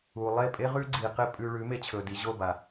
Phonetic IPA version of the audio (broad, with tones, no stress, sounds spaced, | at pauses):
u˨ lˠ e˦˨ pʼ e˦ ʁ ʉ˦ ɡ͡ǀ i˨ q e˦ pʼ ʉ˧ ɭ ʉ˨˦ m e˧ t͡ɕʰ ɵ˨ d i˨ ʑ o˦˨ b a˨